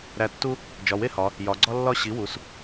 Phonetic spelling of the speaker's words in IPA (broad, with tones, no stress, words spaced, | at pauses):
ɾæ˧˩tːu˥ | d͡ʒɒ˩˧˩we˥hɒ˩˧ | jɒ˩˧ɡ͡ǀɒ˥lːɒ˥ ɕi˩˥wu˩˧s